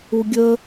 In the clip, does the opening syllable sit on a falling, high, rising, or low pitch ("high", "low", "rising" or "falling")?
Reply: low